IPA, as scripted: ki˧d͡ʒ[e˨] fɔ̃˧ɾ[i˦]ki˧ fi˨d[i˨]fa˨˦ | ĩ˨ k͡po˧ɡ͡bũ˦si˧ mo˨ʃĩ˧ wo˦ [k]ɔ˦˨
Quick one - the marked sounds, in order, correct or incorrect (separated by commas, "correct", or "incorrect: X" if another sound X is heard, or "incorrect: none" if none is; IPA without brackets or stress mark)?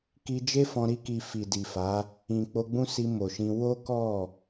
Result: incorrect: e˦, correct, correct, correct